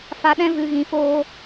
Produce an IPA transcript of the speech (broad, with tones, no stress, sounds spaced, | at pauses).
f a˧ ɗ ɛ̃˦ v ɨ˧ ɣ ĩ˧ f oː˦